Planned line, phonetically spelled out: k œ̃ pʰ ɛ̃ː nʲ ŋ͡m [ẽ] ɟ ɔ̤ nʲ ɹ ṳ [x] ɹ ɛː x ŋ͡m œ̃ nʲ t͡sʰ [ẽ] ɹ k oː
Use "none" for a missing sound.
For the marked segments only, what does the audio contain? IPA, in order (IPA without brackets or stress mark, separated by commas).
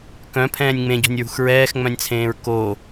ẽ, x, ẽː